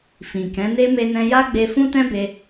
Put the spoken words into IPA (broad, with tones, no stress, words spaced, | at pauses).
fĩ˨kɛ̃˨˦ne˦ me˦nɛ̃˦ ja˦ɡ͡be˧fũ˦tɛ̃˦ be˧